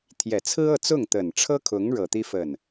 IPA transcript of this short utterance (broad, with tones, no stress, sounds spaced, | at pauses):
t̪ʰ j ɛ˨˩ t͡sʰ ɹ̩˥ ɤ˥˧ t͡s ʊ˥˩ ŋ t̪ ə˨˩ n ʈ͡ʂʰ ɤ˥ kʰ ʊ˧˥ ŋ ɻ ɤ˨˩ t̪ i˥ f ə˥˩ n